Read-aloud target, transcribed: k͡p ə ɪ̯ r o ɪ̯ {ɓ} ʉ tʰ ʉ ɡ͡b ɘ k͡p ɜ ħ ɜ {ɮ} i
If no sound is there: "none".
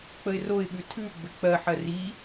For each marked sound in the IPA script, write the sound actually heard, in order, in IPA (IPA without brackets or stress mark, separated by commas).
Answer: ɓ, r